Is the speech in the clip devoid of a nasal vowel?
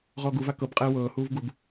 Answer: yes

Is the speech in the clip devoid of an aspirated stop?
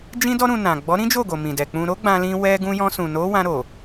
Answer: yes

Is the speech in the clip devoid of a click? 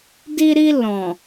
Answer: yes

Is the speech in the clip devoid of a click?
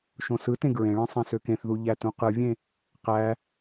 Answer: yes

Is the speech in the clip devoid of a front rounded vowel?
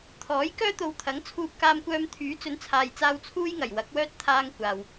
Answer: no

